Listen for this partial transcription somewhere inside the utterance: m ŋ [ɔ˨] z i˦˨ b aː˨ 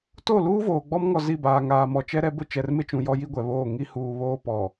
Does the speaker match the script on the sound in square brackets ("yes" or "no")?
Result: yes